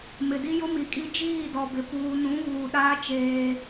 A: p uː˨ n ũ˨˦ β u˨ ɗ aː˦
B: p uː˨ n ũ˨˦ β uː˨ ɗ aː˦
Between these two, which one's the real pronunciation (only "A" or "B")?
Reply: B